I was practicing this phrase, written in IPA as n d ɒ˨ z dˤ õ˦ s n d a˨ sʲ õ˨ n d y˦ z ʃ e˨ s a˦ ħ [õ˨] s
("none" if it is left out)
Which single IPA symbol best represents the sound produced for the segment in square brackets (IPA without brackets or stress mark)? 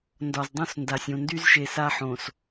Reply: õ˨